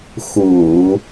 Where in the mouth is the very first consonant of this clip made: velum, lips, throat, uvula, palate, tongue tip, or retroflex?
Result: velum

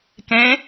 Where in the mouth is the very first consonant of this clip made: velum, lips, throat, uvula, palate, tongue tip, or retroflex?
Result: velum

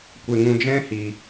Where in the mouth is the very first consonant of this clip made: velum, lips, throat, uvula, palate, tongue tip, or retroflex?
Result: velum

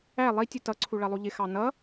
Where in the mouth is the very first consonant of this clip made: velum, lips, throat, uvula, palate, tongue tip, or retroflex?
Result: tongue tip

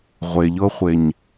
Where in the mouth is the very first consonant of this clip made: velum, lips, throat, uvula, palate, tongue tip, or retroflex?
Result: uvula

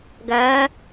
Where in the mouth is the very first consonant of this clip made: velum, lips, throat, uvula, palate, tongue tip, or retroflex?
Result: velum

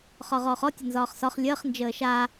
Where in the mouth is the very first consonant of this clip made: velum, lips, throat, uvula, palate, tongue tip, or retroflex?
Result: uvula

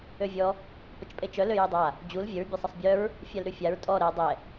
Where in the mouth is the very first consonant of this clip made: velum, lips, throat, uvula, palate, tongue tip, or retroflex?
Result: lips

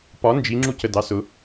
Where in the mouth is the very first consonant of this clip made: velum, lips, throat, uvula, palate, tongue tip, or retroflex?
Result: lips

